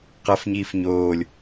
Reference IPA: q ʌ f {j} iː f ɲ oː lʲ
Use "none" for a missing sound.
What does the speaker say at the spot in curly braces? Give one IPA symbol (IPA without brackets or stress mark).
ɲ